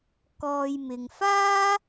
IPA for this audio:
k ɔː˧ j m ɪ˨ ŋ f aː˥

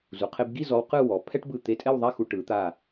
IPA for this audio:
z u˩˧ qʰ e˧ b ɡ i˥˧ z ɔ˧ w q ɯ˥˧ w ɔ˩˧ pʰ ɛ˥ ʈ b ɯ˧˩ t̪ e˧˩ tʼ ɛ˥˧ w ðˤ a˥˧ x u˧ ʈ ɯ˩˧ t̪ a˧˩

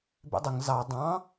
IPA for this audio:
b ḛ dˤ ə ŋ z ɑ dˤ ɑ̃

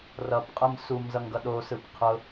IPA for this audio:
r ʌ p qʼ ɯ m s u m z ʌ ŋ ɡ ʌ ɗ o s ɯ p qʰ ʊ

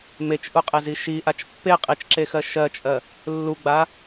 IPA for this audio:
m e t͡ʃ ʔ u qʼ e z i ʃ i ʔ a t͡ʃ pː e qʼ i t͡ʃ ǁ e x ɜ ʃ ɜ t͡ʃʼ ɜ | lː u ɡ͡b a

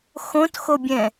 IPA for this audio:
x õ t x o bʲ ɛ̃

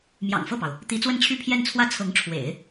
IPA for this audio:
m j ɑ̰˨˩ ŋ f ɤ˥˩ p ɑ˩ ʊ̯ | t̪ i˧˥ t͡s w ə˥˧ n t͡ɕʰ y˥˧ pʰ j ɛ˥˧ n t͡sʰ w ä˥˩ t͡sʰ ɤ˧˥ ŋ ʈ͡ʂʰ w ḛ˨˩˦ ɪ̯

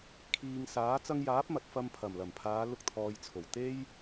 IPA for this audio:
kʰ iː˨ ŋ s aː˨˥ t͡s ɐ˧ ŋ j aː˨˥ p̚ m ɐ˨ t̚ f ɐ˧ m pʰ ɐ˨˩ m l ɐ˨˩ m pʰ aː˨˧ l ʊ˧ k̚ t̪ʰ ɔː˨ j t͡sʰ o˨˩ w t̪ e˥ j

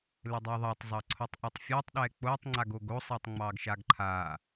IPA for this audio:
l ɘ dˤ e ðˤ ɑ tˤ zˤ ɑ ǀʰ o tˤ ʔ ɛ tˤ fʲ a tˤ ɗ ɛ k͡p o tˤ ŋ͡ǀ a ɡ o ɡ o sˤ e tˤ ŋ͡m ɑ ɡ ʃ a ɡ ǃʰ a

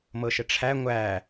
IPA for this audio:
m ɤ ʃ ə ʈ͡ʂʰ æ ŋʷ æ

